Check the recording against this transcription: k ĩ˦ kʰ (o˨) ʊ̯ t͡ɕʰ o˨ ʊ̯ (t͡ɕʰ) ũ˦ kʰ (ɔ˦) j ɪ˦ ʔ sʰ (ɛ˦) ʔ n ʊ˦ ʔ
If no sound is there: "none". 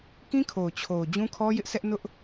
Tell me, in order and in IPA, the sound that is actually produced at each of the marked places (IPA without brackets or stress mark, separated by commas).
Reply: o˨, d͡ʑ, ɔ˦, ɛ˦